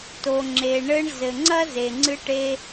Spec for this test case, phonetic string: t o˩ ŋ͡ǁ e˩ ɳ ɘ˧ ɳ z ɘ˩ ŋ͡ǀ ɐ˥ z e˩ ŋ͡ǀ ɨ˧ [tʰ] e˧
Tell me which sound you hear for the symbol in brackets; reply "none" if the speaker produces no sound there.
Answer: ʈ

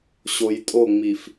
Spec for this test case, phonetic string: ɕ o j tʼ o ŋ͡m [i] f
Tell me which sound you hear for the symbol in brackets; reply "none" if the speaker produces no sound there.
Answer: i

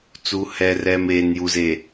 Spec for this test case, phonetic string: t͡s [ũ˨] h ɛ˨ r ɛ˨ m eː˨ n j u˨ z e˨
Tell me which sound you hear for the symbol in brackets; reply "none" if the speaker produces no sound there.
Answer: u˨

